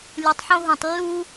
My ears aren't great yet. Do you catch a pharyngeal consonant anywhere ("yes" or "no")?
yes